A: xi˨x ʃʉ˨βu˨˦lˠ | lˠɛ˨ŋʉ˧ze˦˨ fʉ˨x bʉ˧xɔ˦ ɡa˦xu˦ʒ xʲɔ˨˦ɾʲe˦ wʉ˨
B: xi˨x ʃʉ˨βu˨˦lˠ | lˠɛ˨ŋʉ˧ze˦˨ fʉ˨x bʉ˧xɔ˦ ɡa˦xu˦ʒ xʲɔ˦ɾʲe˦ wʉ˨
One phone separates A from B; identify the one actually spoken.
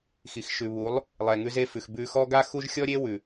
B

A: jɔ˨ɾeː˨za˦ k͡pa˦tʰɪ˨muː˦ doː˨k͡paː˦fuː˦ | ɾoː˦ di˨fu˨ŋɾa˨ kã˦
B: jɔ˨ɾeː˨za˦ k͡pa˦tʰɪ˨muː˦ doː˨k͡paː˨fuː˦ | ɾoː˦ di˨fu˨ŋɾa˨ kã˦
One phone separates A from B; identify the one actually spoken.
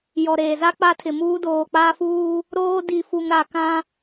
A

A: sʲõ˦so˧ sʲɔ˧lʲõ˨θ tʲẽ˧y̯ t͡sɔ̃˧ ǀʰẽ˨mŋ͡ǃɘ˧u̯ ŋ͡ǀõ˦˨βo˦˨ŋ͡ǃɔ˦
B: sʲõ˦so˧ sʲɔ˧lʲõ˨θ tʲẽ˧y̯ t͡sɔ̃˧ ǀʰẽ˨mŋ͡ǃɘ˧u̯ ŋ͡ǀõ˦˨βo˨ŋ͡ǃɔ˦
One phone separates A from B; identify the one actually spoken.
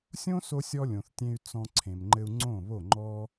A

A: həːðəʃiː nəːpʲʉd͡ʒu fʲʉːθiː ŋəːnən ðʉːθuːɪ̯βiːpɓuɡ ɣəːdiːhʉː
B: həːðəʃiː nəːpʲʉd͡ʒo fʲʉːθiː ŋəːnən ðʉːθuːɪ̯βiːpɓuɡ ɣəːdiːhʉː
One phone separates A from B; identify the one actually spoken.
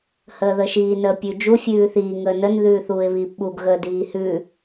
A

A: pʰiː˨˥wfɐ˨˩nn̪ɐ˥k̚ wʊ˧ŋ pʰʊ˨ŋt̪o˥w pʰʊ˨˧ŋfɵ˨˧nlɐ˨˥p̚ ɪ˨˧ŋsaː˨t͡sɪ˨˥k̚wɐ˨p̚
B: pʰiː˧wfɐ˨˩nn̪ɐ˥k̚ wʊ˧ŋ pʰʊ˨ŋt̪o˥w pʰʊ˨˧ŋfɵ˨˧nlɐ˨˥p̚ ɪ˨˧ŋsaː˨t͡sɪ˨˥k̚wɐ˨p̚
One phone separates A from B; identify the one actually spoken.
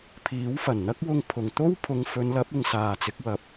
A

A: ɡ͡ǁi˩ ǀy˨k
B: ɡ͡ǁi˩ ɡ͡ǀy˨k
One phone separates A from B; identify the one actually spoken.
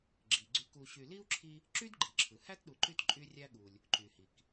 B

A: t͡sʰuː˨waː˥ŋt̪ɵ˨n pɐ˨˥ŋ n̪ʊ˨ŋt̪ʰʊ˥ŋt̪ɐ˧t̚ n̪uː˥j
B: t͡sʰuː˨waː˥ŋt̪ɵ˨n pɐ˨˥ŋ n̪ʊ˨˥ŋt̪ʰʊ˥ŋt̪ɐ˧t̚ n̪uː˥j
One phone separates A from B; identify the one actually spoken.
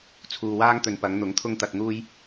B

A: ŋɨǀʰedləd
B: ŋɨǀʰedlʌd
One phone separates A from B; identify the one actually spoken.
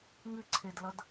B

